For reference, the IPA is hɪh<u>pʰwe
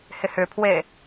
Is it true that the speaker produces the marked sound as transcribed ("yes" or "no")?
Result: no